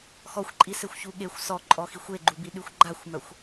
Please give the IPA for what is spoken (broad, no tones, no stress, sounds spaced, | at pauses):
x ɔ xʷ ǃʼ i s e xʷ ç u ɠ e xʷ s ɔ ǃʼ ɔ x i xʷ e ɡ͡ǃ u b i ɗ y xʷ ɡ͡ǃ a xʷ m œ xʷ